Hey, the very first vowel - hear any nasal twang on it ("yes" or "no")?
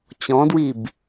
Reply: yes